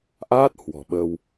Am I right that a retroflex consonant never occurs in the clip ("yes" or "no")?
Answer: yes